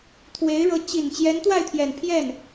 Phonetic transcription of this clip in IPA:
t̪ʰwe˧˥ɪ̯ɻɤ˧˥ t͡ɕi˨˩n t͡ɕjɛ˧˥nt̪wa˥˩ɪ̯t̪ʰjɛ˨˩n pʰjɛ˥˩n

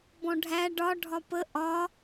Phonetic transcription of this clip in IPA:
bɔ̃ɖʱæ ɖɒ ɖʱɒpə ʔɒ

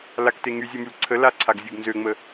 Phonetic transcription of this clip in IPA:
lakte ŋyzʲɔmyl ǀʰə laǀʰaɡzʲuɡ nzøŋ͡mə

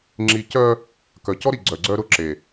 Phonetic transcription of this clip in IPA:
ŋ͡ǁi˨ cœ˦ | kœ˨cɔ˦ɾi˨ ɡ͡ǀœ˨ɡ͡ǀœ˦ɾʊ˦ǁe˨

